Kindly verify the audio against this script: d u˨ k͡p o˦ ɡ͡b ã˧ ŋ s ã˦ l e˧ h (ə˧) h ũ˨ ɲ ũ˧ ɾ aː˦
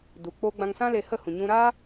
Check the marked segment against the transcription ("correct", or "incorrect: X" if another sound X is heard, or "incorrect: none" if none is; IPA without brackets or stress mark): incorrect: ə˦˨